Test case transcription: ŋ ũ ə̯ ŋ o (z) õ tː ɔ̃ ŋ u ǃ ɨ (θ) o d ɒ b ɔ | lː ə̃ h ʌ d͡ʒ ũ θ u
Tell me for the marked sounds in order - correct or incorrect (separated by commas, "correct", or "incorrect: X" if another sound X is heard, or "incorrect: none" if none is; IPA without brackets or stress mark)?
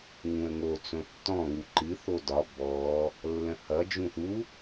incorrect: t͡s, correct